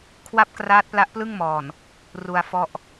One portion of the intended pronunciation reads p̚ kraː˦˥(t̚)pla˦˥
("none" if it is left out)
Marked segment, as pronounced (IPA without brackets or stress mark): t̚